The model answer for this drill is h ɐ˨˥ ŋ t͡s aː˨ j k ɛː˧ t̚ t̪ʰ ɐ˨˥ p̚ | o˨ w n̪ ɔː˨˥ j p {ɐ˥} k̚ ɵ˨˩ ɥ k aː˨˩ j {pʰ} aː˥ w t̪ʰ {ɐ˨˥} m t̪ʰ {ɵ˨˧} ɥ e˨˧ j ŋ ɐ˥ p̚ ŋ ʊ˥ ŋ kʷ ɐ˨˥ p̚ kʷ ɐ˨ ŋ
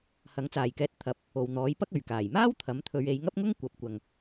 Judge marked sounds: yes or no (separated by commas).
yes, no, yes, yes